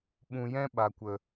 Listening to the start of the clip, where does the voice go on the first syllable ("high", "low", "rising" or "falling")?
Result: low